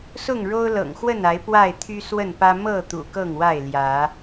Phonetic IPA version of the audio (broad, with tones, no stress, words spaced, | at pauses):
sʊ˥˨ŋɻo˦ʊ̯ lɤ̰˨˩ŋxwə˥˨n a˨˦ɪ̯ pwa˥˨ɪ̯t̪ʰy˦ swə˥˨npä˦ mɤ˥˨ t̪ṵ˨˩kɤ˥˨ŋwa˥˨ɪ̯ ljä˨˦